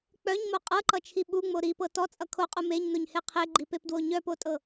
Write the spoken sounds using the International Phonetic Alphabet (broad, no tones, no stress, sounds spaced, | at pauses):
k͡p œ ɲ m o qʼ ɤ ǃ ʌ t͡ʃʰ i ɓ u ŋ͡m o ɾ i p ɤ t ɔ t͡sʼ ʌ kʰ o qʼ u m e ɲ n o ɲ h e qʰ e ɡ͡ǃ i p e p d w o ɲ œ p o tʼ ɤ